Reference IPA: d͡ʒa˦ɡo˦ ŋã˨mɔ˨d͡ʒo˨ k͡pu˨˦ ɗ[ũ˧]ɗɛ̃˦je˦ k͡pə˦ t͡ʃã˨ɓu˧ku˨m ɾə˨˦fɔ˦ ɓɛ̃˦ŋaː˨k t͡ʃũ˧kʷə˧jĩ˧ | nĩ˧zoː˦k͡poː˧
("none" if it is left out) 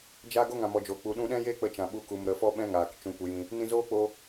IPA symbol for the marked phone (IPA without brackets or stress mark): ũ˧